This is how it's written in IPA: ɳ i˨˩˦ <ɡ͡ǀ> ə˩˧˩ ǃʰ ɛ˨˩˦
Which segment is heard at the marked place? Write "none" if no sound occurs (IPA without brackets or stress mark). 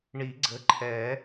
ɡ͡ǀ